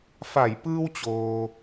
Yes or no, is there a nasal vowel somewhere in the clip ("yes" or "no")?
no